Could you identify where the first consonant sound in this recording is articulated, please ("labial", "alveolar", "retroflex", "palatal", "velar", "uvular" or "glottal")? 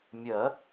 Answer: labial